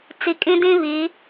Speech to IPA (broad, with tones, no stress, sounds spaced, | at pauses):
t͡s i˨ kʼ ĩ˦ d ĩ˦ β iː˨˦